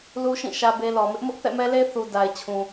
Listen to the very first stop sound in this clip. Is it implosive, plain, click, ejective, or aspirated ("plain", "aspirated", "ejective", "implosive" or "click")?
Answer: plain